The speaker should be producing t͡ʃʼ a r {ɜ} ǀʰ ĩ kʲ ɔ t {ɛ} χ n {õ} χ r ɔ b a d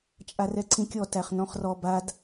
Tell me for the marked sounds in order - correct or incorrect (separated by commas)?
incorrect, incorrect, incorrect